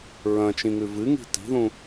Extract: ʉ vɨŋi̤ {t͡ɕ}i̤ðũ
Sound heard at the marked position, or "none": t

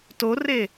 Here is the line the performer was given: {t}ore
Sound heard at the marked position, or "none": t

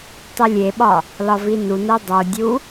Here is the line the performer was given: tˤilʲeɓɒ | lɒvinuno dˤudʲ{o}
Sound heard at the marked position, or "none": u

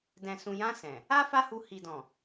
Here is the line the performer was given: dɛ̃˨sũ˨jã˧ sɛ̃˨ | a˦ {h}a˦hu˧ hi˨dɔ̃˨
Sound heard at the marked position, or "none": f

